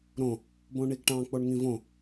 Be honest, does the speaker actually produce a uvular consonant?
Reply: no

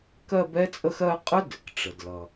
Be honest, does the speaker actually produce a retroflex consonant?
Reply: yes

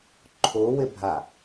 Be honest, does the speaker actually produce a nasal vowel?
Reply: no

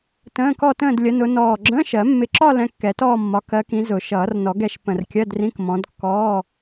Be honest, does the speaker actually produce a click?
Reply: yes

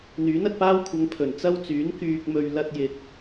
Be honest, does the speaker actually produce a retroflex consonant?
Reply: no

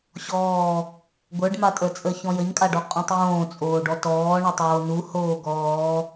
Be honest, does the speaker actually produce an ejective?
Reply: yes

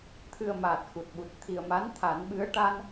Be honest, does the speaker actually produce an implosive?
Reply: yes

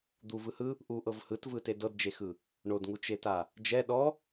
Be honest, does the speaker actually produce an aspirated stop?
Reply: no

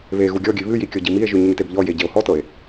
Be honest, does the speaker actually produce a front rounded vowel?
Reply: no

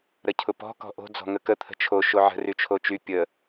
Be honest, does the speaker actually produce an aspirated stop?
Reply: yes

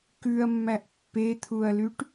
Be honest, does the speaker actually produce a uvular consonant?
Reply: no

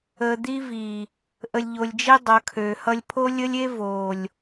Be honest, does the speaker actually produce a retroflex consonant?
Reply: no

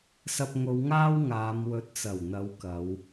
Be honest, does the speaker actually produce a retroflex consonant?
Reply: no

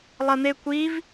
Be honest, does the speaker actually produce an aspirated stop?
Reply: no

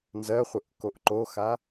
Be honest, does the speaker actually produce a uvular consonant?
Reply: yes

